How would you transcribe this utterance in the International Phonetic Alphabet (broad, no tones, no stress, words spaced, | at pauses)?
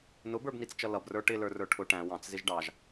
nʊbə˞bnit͡st͡ʃʌ lʌbrə˞ ʈɪlə˞rə˞ ʈʰʊ ʈæ̃ wɑ̃t͡szɪʒ ɖɑʒ